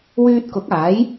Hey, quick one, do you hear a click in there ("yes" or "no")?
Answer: no